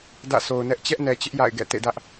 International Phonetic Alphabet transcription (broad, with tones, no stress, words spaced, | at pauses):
dä̰˦˨so˨ʊ̯nɛ˦ʔ t͡ɕɛ˦ʔnɛ˨t͡ɕɪ˦ʔ ja̰˦˨ɪ̯ ɡɛ̰˦˨tḛ˦˨dä˦ʔ